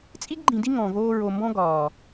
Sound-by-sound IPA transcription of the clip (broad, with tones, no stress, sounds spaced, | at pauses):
t͡sʼ i˦ ɡ ɡ͡ǃ ĩ˨ d i˦ ŋ ɔ̃˨ v oː˦ ɹ o˨ m b ɔ̃˦ ɡ ɒː˨